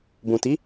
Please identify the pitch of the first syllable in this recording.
low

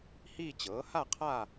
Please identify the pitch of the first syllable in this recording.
falling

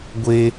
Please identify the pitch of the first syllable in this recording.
high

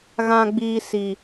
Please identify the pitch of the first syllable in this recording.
low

